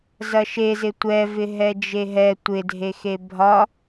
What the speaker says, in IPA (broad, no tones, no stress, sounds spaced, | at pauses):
z ɐ ʃ e z ɪ tʷ ɛ v ɪ ɦ ɛ d͡ʒ e ɦ ɛ tʷ ɪ dʱ e x e bʱ ɒ